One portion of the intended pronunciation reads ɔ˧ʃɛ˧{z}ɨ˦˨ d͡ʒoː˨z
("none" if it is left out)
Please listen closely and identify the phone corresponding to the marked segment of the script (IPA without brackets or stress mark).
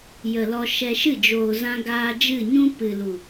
ʃ